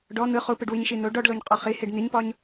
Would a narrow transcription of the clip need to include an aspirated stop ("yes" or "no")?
no